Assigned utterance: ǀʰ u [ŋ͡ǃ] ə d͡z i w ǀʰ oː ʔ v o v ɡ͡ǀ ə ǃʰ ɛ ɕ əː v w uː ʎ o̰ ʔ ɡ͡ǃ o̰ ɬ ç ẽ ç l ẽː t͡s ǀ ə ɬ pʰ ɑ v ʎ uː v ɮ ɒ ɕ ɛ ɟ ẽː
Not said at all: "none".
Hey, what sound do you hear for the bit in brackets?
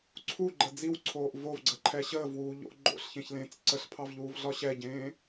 ɡ͡ǃ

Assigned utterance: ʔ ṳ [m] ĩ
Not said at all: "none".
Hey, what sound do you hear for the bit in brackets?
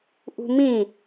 m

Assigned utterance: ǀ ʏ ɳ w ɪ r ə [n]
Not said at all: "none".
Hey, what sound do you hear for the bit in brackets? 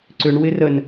n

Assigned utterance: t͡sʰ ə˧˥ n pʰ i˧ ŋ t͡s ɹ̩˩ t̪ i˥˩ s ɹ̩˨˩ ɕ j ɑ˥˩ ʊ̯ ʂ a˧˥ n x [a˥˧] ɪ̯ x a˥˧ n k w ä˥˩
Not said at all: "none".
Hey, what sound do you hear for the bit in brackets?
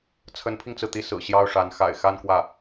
a̰˨˩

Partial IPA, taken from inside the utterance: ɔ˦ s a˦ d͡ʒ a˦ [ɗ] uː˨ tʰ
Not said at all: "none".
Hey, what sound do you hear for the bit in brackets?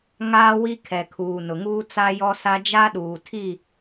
ɗ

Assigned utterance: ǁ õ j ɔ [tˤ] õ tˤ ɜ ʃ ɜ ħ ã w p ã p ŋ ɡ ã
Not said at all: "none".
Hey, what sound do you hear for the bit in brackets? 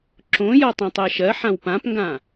tˤ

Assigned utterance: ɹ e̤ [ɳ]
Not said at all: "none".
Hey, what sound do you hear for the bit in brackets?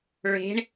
ɳ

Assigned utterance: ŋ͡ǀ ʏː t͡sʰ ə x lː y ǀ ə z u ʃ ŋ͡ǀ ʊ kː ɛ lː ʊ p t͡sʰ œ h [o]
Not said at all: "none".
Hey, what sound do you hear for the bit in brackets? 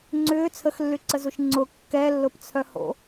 o̰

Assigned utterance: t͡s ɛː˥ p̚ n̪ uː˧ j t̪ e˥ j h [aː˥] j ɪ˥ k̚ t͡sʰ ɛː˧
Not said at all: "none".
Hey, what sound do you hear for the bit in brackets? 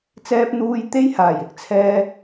aː˨˩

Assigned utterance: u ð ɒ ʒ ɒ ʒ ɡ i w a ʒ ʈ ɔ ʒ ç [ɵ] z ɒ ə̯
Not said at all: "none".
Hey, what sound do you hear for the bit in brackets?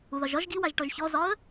ɔ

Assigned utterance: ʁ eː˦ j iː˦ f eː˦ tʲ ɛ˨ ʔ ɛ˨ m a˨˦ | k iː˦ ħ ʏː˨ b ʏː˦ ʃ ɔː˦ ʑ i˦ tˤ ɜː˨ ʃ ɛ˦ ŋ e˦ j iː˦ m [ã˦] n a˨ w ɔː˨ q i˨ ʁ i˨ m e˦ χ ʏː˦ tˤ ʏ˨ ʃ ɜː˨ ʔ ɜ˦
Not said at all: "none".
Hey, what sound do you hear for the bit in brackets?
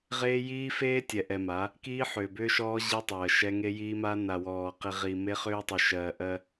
a˦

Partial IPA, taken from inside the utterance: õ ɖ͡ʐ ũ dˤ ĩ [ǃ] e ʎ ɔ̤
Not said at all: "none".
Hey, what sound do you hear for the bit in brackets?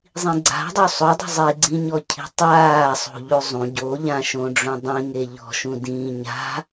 ŋ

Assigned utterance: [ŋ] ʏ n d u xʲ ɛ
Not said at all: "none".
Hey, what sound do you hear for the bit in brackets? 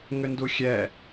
ŋ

